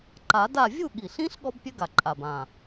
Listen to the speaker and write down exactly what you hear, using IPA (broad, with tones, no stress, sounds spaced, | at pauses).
ǃ a˨˩˦ d a˥˨ vʲ u˥˨ ɠ i˨˩ ɬ ĩ˦˥ ɬ ɠ ɔ˦˥ b pʲ ø˦˥ ɡ a˨˩ ǃʼ a˨˩ b ã˨˩